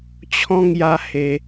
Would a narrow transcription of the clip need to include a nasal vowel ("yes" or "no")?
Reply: yes